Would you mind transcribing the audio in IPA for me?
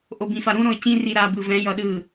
ʔ o b ĩ f a ɾ ũ ɾ õ ə̯ c ĩ r i ɾ a b ɯ v ɛ̃ j ʌ ɗ ɯ

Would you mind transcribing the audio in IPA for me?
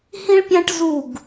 h ĩ˦ ɭ pʲ æ̃˦ ʈ z u˦˨ ɡ

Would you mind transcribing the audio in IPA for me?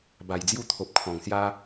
b a˨˩ j d͡z j u˦ t̪ʰ o˨ p̚ kʰ ɔ̃˨˩ ŋ s j a˦

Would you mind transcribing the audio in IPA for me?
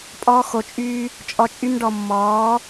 pʼ ɔː˦ x o˧ t͡ʃʼ yː˦ | t͡ʃʼ ɔ˧ t͡ʃʼ y˦ m ɖ ɔ˧ mː ɔː˨˦

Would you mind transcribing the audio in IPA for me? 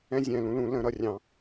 ɛ̃˦ zʲ ɛ̃˨˩ l ũ˩˥ l ũ˨˩˦ l ə̃˨˩˦ ɾ ʌ˨˩ rʲ ɑ̃˨˩˦

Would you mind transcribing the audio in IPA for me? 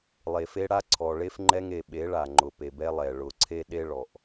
lˠ e˨ f e˦ ɽ a˦ ǀʰ ɔ˨ ɭ e˦ f ŋ͡ǃ ɛ˦ ŋ e˨ ɓ e˨˦ ɭ a˨ ŋ͡ǃ ʊ˨ p e˨ b ɛ˦ lˠ ɛ˨ ɭ ʊ˨ ǀʰ e˦ ɗ e˦ ɭ ɔ˨ ʔ

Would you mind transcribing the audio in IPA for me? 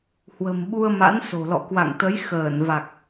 h w ə̤˨˩ m ɓ u˧ ə̯ m a̰˧˥ n s o̤˨˩ l ɔ̰˧˨ k w a̰˧˨ ŋ t̪ ə˨˦ j x əː˧˩ n v a˨˩ k̚

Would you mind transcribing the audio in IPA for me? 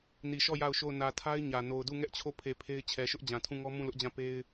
n i˨ ʃ ɔ˦˨ j a˦˨ ʊ̯ ʃ o˦˨ ʊ̯ n ä˨ tʰ a˦ ɪ̯ ɲ ä˨ n o˨ ʊ̯ d u˦˨ ŋ ɛ˦ ʔ t͡ɕʰ o˦˨ pʰ e˨ pʰ e˦ ɪ̯ t͡ɕʰ ɛ˨ ʃ ʊ˦ ʔ d͡ʑ ã˨ tʰ ũ˦˨ ŋ ɔ˦ m ũ˦˨ l ʊ˦ ʔ d͡ʑ ã˦˨ p e˦ ɪ̯

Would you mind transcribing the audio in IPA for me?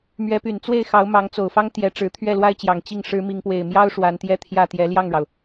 m ɥ ɛ˧˥ p y˨˩ n t͡s w e˥˩ ɪ̯ x ɑ˧˥ ʊ̯ m ɑ˧˥ ŋ t͡s o˨˩ ʊ̯ f ɑ˥ ŋ t̪ j ɛ˧˥ ʈ͡ʂ ɻ̩˧˥ t̪ʰ ɥ ɛ˥˩ l w a˥ ɪ̯ t͡ɕ j ɑ˨˩ ŋ t͡ɕ i˥˩ ŋ ʂ ɻ̩˧˥ m i˧˥ ŋ p w e˨˩ ɪ̯ m j ɑ˥ ʊ̯ ʂ w a˧˥ n t̪ j ɛ˥˧ t̪ʰ j ä˥˩ t̪ j ɛ˧˥ l j ɑ˥˩ ŋ ɻ ɑ˩ ʊ̯

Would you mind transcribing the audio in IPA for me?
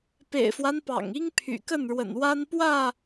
p ḛ˨˩ ɪ̯ f w a˦ n p ɑ̰˨˩ ŋ i˦ ŋ pʰ y̰˨˩ k ə˥˨ n ɻ w ə̰˨˩ n w a˦ n p w ä˥˨

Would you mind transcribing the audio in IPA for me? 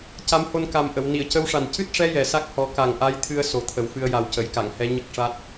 c a˧˥ m h o˧ n k a˨˩ m ʔ ə˨˩˨ w n i˨˩˨ ə̯ c ə˧˥ w ʂ a˨˩ n c ɨ˦˥ t̚ ʂ ɛ˧˥ j ɛ˨˩ s a˦˥ k̚ h ɔ˨˩˦ k a˨˩ ŋ ʔ a˧˥ j t̪ʰ ɨ˧ ə̯ s o˨˩ t̪ʰ ə˨˩ w f ɨ˧ ə̯ j a˨˩ w c ə˨˩˨ j k a˨˩˨ ŋ h ɛ˧˥ ɲ ə˦˥ k̚ ʂ a˦˥ t̚

